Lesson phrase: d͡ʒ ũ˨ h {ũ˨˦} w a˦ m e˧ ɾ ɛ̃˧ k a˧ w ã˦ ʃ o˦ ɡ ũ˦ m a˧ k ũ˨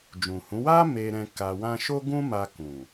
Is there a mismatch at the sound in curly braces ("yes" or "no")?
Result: no